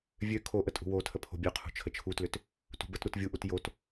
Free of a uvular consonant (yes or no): no